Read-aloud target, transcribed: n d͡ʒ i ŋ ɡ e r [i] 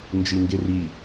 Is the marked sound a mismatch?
no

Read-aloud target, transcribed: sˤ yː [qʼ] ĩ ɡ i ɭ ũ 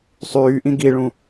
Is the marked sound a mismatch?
yes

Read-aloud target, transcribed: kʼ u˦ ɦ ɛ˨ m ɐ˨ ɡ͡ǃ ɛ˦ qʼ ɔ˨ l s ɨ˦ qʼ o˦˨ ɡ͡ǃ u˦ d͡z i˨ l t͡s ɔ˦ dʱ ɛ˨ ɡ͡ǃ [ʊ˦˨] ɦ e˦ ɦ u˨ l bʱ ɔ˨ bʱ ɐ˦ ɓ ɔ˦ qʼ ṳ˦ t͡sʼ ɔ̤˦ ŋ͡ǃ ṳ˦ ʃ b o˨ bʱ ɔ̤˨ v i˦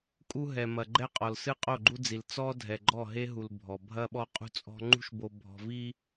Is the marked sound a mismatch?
yes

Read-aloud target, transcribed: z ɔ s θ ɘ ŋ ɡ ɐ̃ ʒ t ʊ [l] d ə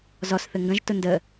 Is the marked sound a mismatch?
yes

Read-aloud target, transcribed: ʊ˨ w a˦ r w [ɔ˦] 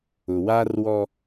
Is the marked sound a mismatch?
no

